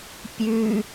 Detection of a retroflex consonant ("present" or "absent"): absent